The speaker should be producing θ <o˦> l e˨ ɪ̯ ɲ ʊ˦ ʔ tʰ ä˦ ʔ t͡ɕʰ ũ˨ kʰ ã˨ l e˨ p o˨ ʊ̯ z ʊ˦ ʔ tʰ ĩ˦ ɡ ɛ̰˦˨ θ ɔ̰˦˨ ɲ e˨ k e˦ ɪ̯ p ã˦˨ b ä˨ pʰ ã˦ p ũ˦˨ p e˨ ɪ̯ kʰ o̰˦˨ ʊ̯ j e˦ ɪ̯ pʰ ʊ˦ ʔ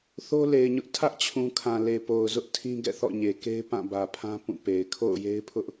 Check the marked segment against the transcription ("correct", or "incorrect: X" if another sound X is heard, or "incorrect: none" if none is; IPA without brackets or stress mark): correct